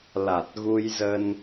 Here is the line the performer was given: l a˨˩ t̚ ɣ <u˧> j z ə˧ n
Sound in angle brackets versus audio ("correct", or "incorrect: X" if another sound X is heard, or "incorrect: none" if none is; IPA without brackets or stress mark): correct